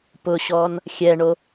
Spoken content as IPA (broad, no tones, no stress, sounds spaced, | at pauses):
p ʊ ɕ ɔ n | xʲ ɛ ɳ o